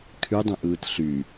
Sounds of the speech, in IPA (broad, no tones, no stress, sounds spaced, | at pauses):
kʰ y dˤ ẽ ʔ ɯː t ɬ y